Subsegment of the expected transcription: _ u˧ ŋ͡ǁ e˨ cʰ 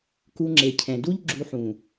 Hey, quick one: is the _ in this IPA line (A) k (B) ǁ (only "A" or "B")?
A